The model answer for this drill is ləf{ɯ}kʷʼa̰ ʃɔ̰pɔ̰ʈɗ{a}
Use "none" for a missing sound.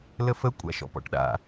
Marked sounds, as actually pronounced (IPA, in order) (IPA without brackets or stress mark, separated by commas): ə, a̰